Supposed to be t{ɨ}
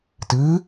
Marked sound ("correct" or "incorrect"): correct